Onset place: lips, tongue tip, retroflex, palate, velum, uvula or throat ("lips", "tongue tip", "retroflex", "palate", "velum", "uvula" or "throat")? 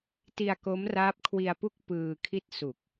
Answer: tongue tip